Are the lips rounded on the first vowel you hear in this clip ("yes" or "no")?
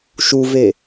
yes